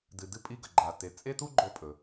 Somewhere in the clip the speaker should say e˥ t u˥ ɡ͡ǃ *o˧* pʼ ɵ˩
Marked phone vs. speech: correct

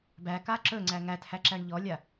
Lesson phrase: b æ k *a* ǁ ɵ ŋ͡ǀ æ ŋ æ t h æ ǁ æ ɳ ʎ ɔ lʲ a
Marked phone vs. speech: correct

